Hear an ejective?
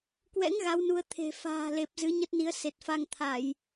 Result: no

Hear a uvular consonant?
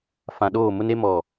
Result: no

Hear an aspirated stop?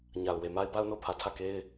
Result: yes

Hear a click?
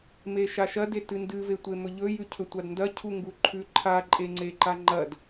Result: yes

